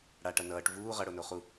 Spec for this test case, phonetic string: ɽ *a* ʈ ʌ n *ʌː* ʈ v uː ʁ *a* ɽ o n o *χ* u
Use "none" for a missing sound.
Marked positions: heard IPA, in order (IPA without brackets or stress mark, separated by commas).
a, ʌː, ʌ, χ